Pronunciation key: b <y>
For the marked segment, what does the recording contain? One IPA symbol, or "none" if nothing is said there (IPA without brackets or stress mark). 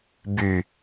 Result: y